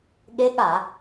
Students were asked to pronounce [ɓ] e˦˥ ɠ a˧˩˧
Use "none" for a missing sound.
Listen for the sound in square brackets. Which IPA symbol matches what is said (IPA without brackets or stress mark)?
ɠ